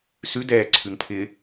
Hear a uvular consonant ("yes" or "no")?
no